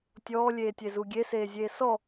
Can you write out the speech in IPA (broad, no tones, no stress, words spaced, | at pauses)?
tʲɔːlʲeːtʲezu ɡʲeseːzʲeː sɔ